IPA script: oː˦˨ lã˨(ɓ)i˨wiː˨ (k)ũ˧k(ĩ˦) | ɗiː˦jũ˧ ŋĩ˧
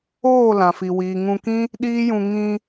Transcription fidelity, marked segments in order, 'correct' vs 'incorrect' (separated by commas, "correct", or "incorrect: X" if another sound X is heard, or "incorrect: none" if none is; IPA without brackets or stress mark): incorrect: f, incorrect: ŋ, correct